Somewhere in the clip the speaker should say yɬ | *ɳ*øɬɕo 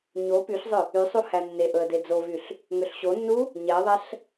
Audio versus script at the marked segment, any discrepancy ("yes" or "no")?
yes